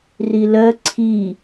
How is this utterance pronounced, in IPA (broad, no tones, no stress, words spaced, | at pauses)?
rilɜ ǀʰi